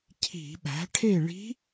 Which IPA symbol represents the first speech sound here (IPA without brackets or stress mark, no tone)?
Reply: cʰ